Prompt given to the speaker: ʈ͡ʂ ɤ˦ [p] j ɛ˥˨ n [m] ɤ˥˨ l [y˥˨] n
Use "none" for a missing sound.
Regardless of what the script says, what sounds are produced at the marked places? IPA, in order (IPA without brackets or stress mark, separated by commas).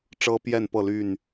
p, p, y˥˨